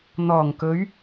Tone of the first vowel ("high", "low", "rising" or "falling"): low